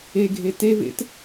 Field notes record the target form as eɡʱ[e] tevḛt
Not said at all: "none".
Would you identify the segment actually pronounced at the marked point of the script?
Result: e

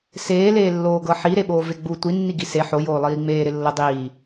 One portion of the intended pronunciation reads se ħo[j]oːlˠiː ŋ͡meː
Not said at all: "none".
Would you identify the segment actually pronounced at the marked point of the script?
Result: j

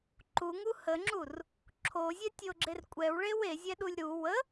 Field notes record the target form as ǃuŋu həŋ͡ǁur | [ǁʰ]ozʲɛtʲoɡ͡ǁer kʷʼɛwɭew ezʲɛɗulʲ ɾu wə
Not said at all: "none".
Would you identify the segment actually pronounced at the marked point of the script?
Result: ǁʰ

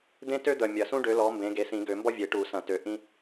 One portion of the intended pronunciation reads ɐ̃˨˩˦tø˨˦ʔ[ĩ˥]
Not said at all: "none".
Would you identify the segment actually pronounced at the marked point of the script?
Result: ĩ˥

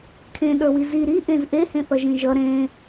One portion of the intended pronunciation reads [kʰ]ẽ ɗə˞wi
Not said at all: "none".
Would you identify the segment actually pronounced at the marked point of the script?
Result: kʰ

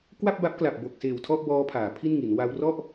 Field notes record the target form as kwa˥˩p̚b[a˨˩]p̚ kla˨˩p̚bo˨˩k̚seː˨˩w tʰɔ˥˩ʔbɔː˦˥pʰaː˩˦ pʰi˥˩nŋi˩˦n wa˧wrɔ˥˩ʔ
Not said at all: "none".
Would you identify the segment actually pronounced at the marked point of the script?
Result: a˦˥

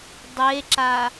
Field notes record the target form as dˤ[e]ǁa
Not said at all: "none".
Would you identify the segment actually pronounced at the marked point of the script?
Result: e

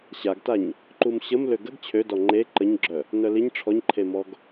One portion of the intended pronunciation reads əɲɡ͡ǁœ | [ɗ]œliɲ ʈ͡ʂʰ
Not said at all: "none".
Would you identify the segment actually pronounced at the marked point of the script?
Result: n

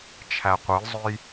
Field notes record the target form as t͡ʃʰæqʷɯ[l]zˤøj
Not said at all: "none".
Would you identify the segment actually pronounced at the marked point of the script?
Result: l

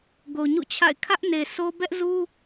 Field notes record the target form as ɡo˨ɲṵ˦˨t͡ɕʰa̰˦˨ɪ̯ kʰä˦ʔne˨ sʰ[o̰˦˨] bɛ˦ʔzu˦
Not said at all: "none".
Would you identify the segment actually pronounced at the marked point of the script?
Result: o˦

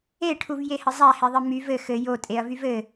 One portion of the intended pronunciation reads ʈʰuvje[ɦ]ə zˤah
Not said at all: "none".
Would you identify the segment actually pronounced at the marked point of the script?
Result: h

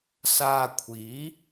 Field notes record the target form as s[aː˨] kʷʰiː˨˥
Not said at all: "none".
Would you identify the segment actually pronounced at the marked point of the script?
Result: aː˨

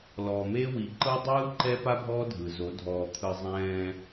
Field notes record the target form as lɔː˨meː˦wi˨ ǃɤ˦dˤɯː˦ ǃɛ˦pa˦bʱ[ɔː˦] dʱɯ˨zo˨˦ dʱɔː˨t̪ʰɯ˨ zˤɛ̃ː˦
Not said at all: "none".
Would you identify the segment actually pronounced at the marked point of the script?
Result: ɔː˦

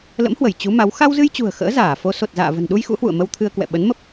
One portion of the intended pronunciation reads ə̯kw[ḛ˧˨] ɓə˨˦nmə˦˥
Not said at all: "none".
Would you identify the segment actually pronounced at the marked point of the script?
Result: ɛ̰˧˨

